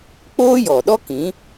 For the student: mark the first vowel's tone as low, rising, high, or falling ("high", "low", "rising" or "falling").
high